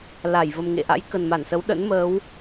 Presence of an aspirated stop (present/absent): absent